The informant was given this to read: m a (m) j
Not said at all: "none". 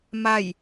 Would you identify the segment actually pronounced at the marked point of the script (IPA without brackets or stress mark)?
none